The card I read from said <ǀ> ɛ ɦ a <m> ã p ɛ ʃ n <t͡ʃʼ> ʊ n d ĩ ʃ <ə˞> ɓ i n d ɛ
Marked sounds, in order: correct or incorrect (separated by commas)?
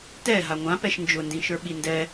incorrect, incorrect, incorrect, correct